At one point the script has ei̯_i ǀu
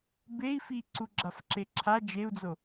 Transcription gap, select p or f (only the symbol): f